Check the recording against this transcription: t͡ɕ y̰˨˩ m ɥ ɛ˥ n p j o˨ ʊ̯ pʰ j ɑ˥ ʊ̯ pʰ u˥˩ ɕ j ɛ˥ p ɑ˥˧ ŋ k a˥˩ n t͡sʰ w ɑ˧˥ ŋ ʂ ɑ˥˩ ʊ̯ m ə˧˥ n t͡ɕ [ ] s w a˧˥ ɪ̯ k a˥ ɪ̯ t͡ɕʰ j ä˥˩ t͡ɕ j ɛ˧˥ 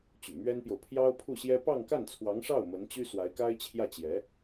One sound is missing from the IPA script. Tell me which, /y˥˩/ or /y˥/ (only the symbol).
y˥